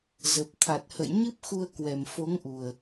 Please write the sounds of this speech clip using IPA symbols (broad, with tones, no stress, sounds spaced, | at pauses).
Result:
z ə˨˩ p̚ t̪ʰ a˨˩ t̚ h ə̰˧˨ j ɲ ɨ˦˥ p̚ x u˧ ə̯ k w ɛ˨˩ m f o˨˦ ŋ ʔ u˨˩ ə̯